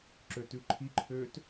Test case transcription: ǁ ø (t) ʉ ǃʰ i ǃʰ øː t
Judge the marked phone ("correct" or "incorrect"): correct